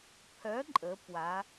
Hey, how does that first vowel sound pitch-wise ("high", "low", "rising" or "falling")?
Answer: rising